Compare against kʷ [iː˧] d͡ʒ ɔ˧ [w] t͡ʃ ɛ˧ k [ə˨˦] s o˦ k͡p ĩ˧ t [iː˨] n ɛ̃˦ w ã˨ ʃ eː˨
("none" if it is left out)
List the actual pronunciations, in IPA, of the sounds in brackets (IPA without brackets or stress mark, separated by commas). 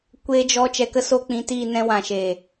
eː˧, none, ə˦, iː˦˨